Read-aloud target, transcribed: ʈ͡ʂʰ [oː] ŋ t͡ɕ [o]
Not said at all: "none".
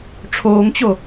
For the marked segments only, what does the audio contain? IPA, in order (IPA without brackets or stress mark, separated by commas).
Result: oː, o